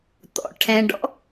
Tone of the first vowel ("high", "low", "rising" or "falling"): low